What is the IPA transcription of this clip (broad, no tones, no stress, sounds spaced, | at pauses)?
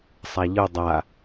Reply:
sˤ a ʎ ɯ dˤ a